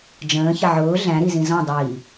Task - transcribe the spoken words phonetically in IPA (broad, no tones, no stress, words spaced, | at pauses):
d͡ʒə̃ːçɪ ʕʊː ɮæ̃ɾizĩ zɔ̃dˤiː